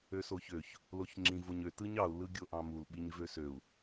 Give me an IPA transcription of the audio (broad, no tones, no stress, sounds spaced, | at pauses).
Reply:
ø s o ç ø ç | l o ç ŋ͡ǁ ĩ v o ɲ ø t ɯ ɲ ɑ u̯ l ɯ ɡʲ o ʔ ɑ̃ m u l ɓ i ɲ v ø s ø u̯